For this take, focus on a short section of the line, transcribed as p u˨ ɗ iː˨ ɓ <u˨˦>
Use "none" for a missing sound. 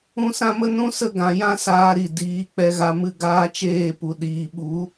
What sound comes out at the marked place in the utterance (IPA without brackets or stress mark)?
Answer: u˨˦